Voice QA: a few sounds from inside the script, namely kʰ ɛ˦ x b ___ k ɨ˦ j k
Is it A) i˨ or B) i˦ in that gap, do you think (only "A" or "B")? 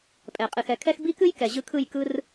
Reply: B